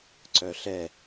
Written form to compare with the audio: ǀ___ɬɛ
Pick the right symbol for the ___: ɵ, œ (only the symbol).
œ